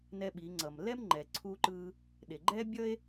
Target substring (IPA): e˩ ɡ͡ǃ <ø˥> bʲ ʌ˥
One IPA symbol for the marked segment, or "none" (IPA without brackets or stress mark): ɛ˥